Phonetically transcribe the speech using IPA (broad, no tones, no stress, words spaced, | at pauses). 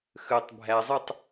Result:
xøtˤ bʱæzˤøtˤ